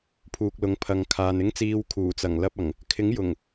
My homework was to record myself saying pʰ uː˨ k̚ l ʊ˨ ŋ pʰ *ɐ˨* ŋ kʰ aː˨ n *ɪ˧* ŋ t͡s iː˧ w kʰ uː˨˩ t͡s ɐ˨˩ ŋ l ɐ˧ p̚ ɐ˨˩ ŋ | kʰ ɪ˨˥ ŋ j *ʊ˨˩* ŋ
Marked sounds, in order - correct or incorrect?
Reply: correct, incorrect: ɪ˥, correct

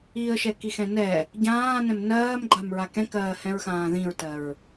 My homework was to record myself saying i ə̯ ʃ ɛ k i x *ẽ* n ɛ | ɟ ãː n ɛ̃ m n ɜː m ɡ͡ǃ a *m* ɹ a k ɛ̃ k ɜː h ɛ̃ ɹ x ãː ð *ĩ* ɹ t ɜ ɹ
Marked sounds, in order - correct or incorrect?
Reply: incorrect: ɛ̃, correct, correct

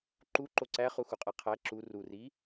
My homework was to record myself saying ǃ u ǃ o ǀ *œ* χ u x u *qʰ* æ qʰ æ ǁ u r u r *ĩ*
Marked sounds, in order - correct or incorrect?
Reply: incorrect: æ, incorrect: qʼ, incorrect: i

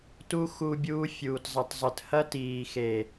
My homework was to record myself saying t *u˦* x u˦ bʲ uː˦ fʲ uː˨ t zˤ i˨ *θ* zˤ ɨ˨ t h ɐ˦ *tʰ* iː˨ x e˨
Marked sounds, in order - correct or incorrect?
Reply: correct, incorrect: tˤ, incorrect: t

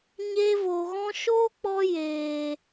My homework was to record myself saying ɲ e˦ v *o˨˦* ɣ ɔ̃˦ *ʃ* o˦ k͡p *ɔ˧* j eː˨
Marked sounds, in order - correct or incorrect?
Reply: incorrect: o˧, correct, correct

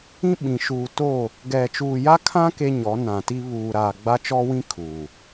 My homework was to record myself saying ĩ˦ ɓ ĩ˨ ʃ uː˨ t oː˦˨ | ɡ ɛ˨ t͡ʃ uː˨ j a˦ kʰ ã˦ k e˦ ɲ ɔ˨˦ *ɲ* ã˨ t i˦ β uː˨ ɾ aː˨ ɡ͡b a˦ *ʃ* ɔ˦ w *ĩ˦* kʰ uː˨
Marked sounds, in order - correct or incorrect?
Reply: incorrect: n, incorrect: t͡ʃ, correct

